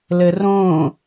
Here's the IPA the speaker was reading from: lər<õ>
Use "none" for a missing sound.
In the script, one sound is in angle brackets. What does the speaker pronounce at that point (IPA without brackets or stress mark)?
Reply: õ